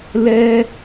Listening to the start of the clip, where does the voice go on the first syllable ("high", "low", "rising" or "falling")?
high